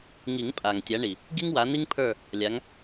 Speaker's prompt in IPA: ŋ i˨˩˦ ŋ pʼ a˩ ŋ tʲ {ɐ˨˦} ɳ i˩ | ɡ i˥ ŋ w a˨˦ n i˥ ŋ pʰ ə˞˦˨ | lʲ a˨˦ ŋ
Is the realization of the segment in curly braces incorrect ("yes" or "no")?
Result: yes